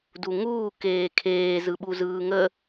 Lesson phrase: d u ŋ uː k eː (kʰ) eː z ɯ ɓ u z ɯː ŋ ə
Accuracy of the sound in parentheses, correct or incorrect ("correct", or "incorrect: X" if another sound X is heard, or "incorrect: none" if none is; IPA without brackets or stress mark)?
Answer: correct